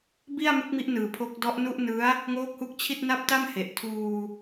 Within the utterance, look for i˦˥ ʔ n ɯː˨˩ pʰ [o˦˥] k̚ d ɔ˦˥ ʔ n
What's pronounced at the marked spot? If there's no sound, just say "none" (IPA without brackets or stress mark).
o˦˥